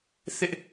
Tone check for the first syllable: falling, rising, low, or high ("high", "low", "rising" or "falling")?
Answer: high